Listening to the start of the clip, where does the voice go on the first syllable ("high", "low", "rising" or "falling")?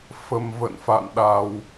low